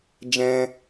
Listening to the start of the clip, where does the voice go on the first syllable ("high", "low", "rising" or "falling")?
high